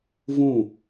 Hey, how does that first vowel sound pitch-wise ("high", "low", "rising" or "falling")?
falling